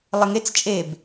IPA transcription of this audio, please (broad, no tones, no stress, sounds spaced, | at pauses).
lˠ e ŋ e t͡s t͡ʃʼ e b